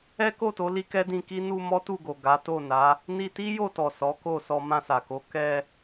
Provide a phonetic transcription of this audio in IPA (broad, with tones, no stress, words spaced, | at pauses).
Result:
ɛ˦ko˦˨to˨˦ li˦kɛ˦dĩ˧ki˦ nu˧ mɔ˦tu˦˨ɡo˨ ɡa˨˦to˦˨na˨˦ | ni˧ti˦jo˦˨tɔ˨ sɔ˨˦ko˦˨sɔ˧ mã˧sa˨ko˨˦ kɛ˧